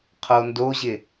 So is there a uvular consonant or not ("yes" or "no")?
yes